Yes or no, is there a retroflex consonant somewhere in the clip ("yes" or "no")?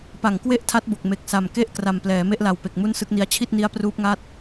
no